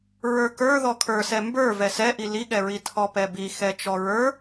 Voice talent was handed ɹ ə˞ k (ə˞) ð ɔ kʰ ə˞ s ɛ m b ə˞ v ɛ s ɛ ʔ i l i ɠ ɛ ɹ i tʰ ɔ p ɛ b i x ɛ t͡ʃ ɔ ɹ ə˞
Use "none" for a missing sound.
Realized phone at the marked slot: ə˞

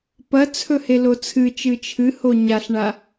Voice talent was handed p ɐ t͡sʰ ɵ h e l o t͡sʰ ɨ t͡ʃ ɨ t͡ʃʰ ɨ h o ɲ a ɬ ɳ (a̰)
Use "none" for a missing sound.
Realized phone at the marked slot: a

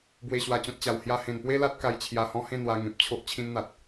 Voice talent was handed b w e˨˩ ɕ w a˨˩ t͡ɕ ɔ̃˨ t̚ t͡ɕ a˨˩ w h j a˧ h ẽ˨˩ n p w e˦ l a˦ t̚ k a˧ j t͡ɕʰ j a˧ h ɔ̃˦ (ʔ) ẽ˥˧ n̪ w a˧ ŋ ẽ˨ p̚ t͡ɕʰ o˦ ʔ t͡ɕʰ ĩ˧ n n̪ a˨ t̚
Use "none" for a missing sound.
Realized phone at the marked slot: h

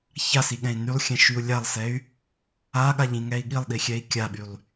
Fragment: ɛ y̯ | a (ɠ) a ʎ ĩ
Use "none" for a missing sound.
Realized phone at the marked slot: ɠ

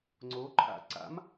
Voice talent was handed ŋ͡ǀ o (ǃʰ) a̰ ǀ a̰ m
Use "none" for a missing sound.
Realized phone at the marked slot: ǃʰ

